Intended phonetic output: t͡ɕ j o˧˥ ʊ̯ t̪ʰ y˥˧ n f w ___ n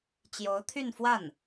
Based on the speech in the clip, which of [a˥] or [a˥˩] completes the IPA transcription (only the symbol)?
a˥˩